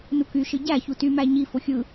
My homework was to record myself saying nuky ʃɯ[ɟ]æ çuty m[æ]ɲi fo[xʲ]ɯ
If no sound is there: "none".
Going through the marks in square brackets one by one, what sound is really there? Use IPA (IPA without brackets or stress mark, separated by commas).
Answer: ɟ, æ, xʲ